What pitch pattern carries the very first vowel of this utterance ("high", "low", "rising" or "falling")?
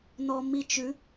low